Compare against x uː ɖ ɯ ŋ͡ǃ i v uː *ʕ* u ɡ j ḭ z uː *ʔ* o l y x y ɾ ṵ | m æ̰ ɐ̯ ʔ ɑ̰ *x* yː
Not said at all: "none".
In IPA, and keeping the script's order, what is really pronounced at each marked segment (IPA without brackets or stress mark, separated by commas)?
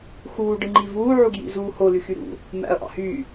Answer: ʕ, h, h